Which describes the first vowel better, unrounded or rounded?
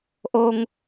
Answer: rounded